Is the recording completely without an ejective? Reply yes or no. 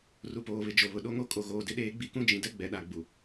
no